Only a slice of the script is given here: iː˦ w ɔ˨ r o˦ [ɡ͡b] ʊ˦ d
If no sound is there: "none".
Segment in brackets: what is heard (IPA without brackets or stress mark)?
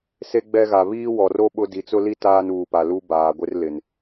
ɓ